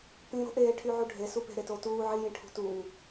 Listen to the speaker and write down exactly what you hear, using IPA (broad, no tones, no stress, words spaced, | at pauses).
pĩ ɾo̤ʔeːʈʰyʕu ɖʱe supe̤ ɾetoːtuː ʕijĩ ʈʰṳt uŋ